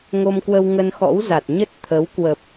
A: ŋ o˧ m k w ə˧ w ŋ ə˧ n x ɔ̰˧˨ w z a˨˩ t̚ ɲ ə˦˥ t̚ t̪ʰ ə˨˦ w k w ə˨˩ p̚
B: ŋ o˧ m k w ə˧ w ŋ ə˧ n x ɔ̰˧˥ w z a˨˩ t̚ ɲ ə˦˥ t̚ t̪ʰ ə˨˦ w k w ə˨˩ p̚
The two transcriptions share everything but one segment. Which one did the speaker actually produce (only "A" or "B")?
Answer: B